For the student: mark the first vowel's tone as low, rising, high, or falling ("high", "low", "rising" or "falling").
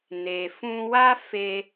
low